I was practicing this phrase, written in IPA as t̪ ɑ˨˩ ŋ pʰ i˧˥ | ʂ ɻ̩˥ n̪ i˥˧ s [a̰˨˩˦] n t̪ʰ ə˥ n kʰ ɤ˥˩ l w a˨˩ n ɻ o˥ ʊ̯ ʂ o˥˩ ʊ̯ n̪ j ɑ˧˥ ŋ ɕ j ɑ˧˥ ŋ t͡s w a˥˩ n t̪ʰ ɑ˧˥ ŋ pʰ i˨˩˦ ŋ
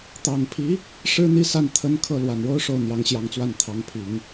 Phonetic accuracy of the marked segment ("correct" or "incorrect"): incorrect